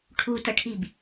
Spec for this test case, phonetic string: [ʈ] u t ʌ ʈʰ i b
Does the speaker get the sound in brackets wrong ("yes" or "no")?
yes